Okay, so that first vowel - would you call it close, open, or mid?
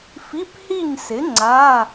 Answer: close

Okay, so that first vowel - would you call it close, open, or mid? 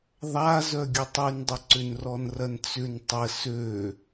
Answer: open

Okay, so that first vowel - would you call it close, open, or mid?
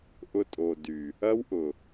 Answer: close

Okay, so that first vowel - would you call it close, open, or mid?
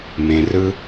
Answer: mid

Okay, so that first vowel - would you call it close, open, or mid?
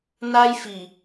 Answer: open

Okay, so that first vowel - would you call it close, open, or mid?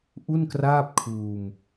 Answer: close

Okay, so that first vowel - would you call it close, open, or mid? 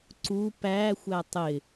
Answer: close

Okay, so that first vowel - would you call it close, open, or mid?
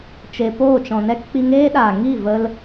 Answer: mid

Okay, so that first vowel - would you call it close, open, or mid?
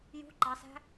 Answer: close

